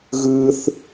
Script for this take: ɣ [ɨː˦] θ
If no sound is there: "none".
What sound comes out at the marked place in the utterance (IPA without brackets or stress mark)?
ɨː˦